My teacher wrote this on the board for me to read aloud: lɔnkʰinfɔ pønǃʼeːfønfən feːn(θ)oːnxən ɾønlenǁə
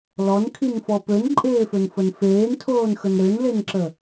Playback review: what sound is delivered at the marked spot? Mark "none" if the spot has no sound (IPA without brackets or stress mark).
tʰ